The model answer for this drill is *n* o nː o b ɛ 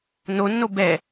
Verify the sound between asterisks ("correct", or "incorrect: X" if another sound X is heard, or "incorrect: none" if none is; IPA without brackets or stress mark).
correct